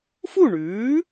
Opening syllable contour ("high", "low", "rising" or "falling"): falling